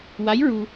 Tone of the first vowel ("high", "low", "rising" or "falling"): rising